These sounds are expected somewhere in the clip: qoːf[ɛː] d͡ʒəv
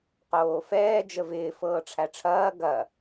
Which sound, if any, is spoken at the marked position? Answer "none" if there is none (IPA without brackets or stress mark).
ɛː